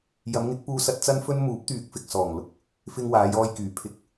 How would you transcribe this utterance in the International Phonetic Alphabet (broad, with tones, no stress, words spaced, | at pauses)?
jɐ˨˧mŋɪ˨˥k̚puː˧sɐ˧t̚ t͡sɐ˥nfɵ˥n muː˨˥p̚t̪yː˨k̚fɪ˨k̚ sɔː˨˩ŋlʊ˧k̚ | fɪ˧ŋwaː˨˧jɔː˧jkyː˨˩ pʰɪ˨˥k̚